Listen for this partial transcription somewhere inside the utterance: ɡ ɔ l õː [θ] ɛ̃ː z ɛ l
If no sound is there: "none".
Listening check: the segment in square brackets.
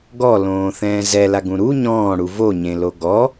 θ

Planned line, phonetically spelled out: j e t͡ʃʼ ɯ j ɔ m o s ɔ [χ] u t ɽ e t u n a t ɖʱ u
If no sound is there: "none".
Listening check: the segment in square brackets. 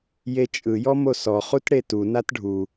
χ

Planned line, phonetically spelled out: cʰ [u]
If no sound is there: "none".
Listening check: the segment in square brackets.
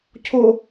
ʊ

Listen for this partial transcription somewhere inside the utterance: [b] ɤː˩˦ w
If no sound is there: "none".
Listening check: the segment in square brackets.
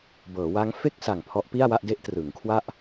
b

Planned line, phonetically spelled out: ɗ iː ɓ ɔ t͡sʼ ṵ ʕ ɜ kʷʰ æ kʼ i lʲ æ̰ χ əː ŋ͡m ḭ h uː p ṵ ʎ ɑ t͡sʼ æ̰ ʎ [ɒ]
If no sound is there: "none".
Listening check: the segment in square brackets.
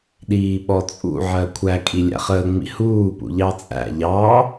ɑ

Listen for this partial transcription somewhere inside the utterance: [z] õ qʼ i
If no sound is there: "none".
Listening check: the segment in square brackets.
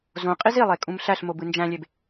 z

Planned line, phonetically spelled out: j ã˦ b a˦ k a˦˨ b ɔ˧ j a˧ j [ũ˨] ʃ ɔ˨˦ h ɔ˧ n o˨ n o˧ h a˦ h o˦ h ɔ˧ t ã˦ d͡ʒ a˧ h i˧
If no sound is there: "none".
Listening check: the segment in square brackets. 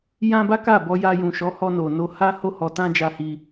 ũ˨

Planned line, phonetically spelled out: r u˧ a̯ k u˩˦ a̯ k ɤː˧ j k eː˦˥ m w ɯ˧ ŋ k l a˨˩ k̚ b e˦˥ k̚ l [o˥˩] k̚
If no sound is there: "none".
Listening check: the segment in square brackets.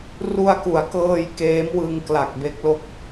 o˦˥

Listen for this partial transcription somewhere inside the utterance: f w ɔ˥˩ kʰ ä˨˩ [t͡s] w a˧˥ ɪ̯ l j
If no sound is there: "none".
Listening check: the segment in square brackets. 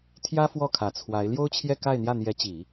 t͡sʰ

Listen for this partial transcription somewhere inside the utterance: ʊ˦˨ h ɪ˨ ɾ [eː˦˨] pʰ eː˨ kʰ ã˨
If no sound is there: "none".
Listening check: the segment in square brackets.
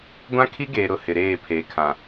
eː˦˨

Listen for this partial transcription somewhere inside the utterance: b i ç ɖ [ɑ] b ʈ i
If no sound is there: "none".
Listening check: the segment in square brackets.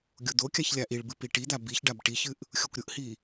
a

